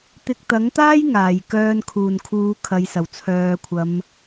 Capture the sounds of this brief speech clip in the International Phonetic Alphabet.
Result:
t̪ ɪ˧ k̚ t̪ ɐ˨˥ ŋ t̪ aː˥ j ŋ aː˨˩ j k œː˧ n kʰ uː˨˩ n kʰ uː˨˧ kʰ ɐ˨ j s ɐ˨˩ w t͡sʰ œː˨˧ kʷʰ ɐ˨˧ m

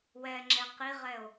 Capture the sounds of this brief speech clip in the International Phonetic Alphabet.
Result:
w ɛ ŋ͡ǁ ɛ q i ʁ ɛ o̯

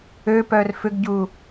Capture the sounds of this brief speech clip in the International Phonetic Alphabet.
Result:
ø p œ r f ʏ ɡ ɟ u

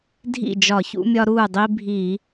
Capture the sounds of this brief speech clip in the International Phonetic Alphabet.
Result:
dʱ ḭ˥˩ d͡ʒ ɒ˧˩˧ ç ṵ˦ mʲ ɒ˦ ɾ uː˥˩ dˤ i˦ bʱ iː˧˩˧

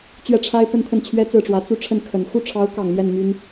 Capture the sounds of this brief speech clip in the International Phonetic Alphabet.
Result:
t͡ɕ ɥ ɛ˥˩ ʈ͡ʂʰ a˥ ɪ̯ p ə˥˧ n t̪ʰ ə˥˩ n t͡ɕʰ ɥ ɛ˥ t͡s ɹ̩˥˩ ʈ͡ʂ w ä˧˥ t͡s u˥˧ ʈ͡ʂʰ ə˥˩ n kʰ ə˨˩ n x u˥˩ ʈ͡ʂʰ ɑ˧˥ ʊ̯ k ɑ˨˩ ŋ m j ɛ˥˩ n m y˥ n

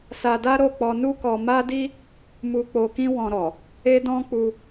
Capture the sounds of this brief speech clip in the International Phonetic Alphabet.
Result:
s a˧ d a˦ ɾ o˦˨ k͡p ɔ˧ n u˦ k ɔ˧ m a˦ d i˦ | m u˧ k͡p o˧ k ĩ˦ w ɔ̃˧ ɾ ɔ˨ | e˦ d ɔ̃˦ k͡p u˧

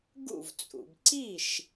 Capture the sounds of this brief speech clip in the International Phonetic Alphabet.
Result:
ɡ ṵ˥˩ v t͡sʼ ṵ˩ b ǀ i˥˩ ʃ

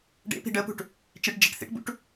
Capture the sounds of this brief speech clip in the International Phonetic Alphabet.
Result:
ɖ ḛ p i̤ ɖ ə p ṳ ʈ | t͡ʃ e ʈ d͡ʒ e̤ ʈ θ ḭ ʈ b ṵ ʈ

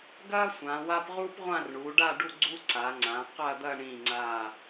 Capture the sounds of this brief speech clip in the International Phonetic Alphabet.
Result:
ɡ ɐː˥ sʷ ã˩˧ w a˥ p ʁ uː˥ p ʁʷ ã˥˧ r ɳ uː˩˧ ɖ a˥˧ ɖ u˥˧ ɡ͡ǀ u˥ ǀ a˩˧ ŋ͡ǀ ã˩˧ q ɐ˥˧ d̪ ɐ˥˧ ɳ ĩ˧˩ ŋ͡ǀ aː˧˩

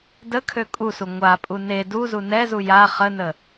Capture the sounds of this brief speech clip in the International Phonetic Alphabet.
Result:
d ə kʰ ø kʼ u s u ŋʷ a pʼ u n e d u z u n ɛ z u j a χ ə n ə

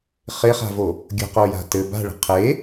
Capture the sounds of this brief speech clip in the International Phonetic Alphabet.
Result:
χ ɪ χ a̤ v o | ɡʲ ə̤ q o j a̤ t ɘ b a̤ ɭ ə̤ qʰ e

